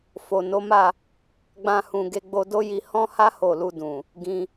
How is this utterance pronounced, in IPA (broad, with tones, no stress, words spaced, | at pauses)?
fo˨ no˨˦ma˦˨ | ɡ͡bã˧hũ˨ ɡe˧ɡ͡bo˧do˦ji˧ hɔ̃˦ha˦ ho˦˨ lu˧dũ˨ | ɡĩ˧